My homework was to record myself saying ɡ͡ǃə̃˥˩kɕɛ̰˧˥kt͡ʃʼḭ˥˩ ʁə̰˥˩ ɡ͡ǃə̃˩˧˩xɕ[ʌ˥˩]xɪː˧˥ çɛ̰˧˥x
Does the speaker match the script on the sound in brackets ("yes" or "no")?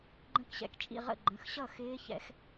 yes